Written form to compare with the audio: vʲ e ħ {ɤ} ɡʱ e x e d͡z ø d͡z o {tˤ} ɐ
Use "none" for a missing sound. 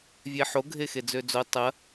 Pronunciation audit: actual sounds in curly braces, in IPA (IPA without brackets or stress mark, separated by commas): o, tˤ